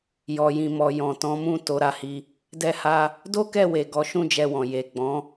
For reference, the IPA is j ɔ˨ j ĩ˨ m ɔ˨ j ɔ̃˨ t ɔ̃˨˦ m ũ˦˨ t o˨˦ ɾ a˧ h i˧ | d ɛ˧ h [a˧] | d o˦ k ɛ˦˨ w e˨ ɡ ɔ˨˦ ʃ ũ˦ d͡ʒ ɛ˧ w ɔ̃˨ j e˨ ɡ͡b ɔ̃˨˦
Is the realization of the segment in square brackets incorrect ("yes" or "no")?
no